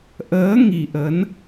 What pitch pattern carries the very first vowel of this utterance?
rising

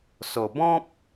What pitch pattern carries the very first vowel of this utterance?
low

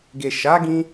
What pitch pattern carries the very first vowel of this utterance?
low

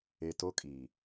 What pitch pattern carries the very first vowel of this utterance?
low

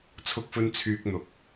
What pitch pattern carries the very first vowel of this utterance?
high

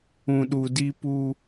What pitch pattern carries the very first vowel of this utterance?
low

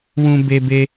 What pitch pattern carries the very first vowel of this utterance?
high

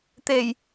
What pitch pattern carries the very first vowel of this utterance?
low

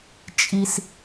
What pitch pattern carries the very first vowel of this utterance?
high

